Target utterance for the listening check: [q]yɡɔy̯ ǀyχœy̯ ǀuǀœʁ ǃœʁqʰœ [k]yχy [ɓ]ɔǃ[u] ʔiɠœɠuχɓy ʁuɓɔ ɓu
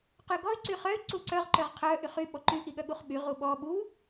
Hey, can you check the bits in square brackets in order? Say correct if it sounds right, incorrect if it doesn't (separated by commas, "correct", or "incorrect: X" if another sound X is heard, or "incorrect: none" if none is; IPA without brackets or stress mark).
correct, incorrect: ʔ, correct, incorrect: y